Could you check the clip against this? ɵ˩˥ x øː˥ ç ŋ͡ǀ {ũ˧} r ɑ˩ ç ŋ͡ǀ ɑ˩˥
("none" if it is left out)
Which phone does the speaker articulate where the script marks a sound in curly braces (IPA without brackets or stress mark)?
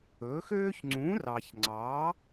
ũ˩˥